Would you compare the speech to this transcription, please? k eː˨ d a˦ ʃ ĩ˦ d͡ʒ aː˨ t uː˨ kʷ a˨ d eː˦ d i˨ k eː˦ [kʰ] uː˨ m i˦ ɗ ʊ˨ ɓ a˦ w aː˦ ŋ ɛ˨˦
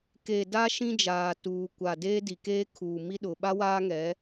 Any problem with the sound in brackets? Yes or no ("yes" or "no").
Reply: no